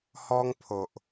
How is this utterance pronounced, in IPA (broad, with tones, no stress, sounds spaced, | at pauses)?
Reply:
h ɔ˦ ŋ pʰ o˨ ʔ